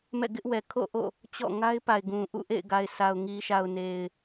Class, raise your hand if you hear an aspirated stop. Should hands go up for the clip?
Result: yes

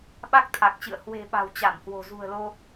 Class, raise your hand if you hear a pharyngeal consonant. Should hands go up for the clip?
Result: no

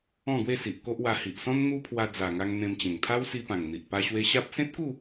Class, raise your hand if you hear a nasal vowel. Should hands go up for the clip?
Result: yes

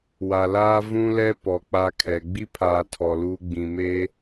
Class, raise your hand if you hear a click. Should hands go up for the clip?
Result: no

